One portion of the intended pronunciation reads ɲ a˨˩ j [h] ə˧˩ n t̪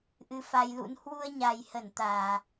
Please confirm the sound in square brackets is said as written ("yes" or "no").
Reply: yes